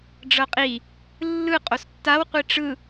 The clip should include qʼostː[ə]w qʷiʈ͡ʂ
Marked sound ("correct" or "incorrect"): incorrect